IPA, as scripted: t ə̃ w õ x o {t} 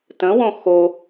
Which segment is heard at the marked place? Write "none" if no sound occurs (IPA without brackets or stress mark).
none